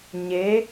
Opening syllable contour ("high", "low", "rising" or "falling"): rising